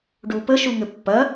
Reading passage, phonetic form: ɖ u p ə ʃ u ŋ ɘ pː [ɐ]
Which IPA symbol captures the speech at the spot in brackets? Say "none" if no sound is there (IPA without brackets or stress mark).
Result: ɐ